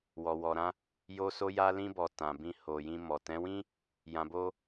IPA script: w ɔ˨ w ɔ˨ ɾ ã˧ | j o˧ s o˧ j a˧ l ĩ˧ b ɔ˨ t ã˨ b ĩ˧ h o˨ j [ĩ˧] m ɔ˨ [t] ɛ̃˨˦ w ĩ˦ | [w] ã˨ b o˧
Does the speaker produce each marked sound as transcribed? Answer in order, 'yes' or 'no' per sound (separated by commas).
yes, yes, no